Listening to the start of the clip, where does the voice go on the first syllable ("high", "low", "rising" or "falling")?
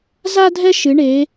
high